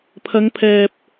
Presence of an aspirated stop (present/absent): present